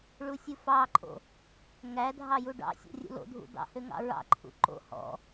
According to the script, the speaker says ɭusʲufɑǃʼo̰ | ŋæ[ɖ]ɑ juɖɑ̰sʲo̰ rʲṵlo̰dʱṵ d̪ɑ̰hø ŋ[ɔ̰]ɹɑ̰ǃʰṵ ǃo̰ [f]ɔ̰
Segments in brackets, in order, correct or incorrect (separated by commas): incorrect, incorrect, incorrect